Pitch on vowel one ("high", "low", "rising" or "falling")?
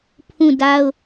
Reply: falling